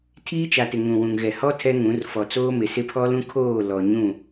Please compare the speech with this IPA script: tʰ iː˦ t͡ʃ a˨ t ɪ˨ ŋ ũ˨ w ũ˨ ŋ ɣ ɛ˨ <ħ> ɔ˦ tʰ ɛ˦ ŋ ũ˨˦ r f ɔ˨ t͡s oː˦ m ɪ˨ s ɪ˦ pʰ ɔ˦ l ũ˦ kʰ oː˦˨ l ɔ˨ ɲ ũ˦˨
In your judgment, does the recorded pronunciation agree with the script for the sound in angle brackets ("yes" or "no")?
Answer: no